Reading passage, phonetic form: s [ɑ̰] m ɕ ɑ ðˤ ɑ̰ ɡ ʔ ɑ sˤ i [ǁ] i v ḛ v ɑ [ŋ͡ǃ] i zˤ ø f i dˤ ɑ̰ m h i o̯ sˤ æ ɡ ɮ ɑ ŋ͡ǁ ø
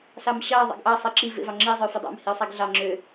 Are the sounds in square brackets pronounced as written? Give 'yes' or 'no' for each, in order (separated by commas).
no, yes, no